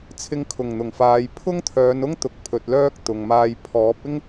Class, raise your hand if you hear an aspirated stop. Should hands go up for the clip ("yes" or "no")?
yes